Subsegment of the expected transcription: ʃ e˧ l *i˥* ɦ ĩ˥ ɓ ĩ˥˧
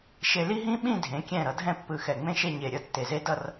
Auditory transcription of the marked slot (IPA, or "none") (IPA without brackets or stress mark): i˥